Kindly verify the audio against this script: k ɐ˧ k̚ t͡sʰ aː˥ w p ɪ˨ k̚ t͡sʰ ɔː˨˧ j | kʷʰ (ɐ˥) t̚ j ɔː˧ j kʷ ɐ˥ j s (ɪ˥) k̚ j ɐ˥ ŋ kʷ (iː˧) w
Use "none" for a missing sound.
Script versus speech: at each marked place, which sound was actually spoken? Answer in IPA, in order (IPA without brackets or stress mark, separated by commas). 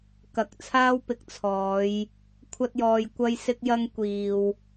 ɐ˥, ɪ˥, iː˨